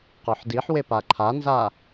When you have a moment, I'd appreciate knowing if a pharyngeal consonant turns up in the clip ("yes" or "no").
yes